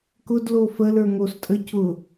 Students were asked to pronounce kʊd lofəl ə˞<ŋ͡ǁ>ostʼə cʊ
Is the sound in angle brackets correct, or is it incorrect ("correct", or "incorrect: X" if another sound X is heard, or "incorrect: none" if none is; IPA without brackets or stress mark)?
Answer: incorrect: ŋ